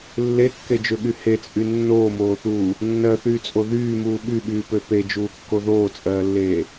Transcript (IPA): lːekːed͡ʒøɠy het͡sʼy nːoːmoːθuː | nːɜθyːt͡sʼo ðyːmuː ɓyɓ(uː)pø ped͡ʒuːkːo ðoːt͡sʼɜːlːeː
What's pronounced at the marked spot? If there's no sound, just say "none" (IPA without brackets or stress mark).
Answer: yː